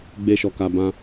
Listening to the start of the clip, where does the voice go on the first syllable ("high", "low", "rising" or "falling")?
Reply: high